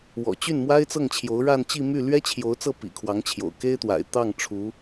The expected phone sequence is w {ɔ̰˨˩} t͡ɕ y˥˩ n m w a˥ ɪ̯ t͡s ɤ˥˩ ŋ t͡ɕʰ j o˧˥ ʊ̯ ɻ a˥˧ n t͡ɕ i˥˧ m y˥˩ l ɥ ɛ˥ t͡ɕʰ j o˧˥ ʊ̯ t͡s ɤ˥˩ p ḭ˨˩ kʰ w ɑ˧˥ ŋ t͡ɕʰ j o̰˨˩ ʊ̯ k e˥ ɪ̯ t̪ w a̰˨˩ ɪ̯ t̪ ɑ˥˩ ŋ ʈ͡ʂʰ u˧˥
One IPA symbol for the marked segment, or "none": ɔ̰˨˩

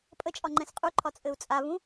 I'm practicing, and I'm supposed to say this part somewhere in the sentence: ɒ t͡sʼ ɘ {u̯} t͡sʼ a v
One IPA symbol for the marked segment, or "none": u̯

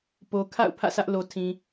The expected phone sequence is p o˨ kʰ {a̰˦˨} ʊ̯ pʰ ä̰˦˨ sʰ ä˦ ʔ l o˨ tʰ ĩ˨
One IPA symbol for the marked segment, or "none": a̰˦˨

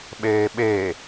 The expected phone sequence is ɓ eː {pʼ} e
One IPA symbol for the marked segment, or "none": ɓ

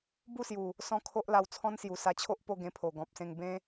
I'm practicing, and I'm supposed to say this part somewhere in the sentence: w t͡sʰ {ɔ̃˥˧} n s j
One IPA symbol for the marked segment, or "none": ɔ̃˦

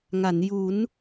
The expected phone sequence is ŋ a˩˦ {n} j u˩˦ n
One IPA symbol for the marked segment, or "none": n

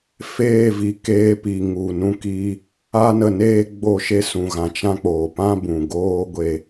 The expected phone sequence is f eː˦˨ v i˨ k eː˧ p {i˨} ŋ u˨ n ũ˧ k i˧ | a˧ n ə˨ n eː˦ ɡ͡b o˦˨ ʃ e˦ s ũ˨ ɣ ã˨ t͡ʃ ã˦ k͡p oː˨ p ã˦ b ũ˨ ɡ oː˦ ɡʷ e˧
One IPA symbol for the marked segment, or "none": i˨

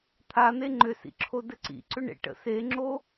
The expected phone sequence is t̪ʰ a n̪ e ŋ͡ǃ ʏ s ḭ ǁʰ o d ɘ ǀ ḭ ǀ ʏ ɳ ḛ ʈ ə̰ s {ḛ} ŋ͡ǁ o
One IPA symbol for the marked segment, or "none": e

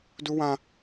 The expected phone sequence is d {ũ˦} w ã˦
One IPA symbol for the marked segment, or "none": u˦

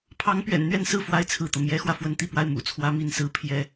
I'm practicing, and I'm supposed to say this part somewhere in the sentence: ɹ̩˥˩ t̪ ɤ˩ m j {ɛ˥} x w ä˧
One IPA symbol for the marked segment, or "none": ɛ˧˥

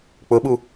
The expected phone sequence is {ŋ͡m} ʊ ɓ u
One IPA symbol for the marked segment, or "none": k͡p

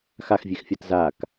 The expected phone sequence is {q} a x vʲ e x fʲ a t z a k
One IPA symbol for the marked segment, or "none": x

